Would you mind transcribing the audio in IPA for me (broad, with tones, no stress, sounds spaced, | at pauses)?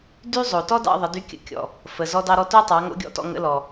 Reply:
d y˥ zˤ o˩ t ɔ˥ d ɑ̰˧ ðˤ ə˩˧ d y˧˥ kʲ ə̰˧ kʲ ɔ̰˩ | f ə˩ z ɔ˧ d ɑ˧ ɾ ɔ˧ t o˥ tˤ ɑ˩˧ ŋ o̰˧˥ ɡʲ ɔ̰˧ t ɔ̰˧ ŋ ə̰˧˥ l ɔ˩